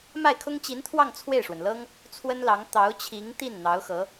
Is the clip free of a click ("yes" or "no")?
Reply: yes